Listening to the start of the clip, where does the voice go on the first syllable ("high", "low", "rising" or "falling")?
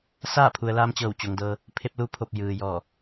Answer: falling